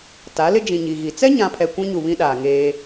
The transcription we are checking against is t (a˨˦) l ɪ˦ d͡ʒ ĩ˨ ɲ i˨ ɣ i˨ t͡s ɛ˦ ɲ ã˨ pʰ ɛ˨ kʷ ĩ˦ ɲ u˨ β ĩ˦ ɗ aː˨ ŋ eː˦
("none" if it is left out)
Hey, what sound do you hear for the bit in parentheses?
a˨˦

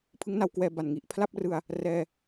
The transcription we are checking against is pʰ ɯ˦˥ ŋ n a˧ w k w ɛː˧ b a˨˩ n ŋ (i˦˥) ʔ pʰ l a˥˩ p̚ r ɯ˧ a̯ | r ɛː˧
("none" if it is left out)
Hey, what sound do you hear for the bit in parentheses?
i˨˩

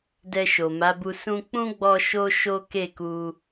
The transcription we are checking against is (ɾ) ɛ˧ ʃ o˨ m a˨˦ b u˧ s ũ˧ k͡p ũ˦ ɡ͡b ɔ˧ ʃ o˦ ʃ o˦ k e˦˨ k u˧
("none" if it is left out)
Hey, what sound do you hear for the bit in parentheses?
d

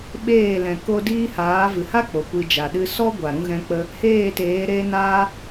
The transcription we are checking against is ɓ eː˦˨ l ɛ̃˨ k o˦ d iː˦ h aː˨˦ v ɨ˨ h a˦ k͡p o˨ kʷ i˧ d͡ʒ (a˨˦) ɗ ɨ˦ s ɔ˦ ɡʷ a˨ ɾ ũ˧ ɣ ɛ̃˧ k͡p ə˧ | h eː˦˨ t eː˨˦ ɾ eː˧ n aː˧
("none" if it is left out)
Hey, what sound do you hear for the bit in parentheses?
a˨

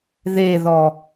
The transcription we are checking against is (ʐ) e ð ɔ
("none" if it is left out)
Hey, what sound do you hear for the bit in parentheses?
ð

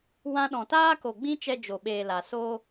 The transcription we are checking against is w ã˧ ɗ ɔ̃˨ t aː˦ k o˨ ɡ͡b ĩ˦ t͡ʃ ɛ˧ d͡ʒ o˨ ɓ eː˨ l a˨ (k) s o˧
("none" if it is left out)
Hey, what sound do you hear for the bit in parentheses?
none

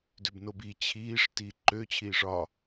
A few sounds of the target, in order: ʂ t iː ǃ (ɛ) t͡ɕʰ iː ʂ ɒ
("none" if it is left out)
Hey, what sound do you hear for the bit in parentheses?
ø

